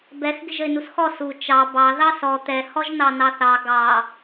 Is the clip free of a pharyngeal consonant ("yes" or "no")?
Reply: yes